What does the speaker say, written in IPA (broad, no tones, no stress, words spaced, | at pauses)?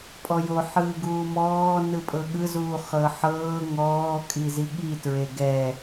pʼɔjo ħɯːɡuːmɔː nɯpʼɤɠɯzuː χɤħɤː ŋɔːkʼi ziɠitɹe ɡɛ